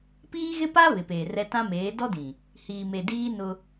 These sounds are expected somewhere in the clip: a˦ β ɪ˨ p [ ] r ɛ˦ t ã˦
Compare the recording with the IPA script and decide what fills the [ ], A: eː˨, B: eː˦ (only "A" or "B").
A